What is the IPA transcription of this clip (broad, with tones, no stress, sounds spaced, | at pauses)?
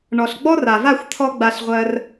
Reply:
ɳ ɔ˨ ɬ ɡ͡b ɔ˦ r a˨ v a˦˨ xʷ t̪ʰ ɔ˦ ɡ͡b a˧ ɬ ʁʷ ɜ˧ r